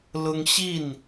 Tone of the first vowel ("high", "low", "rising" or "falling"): high